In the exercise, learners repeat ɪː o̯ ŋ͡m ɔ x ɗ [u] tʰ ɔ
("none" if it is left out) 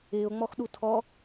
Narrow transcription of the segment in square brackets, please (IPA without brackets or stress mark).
u